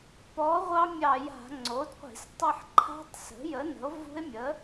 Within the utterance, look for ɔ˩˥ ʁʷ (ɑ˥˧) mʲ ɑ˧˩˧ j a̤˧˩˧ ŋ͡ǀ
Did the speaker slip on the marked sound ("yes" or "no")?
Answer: yes